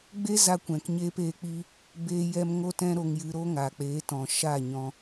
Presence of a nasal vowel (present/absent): present